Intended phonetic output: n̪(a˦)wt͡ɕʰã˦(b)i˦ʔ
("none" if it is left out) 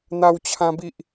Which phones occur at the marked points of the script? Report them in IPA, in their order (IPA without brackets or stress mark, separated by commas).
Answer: a˦, b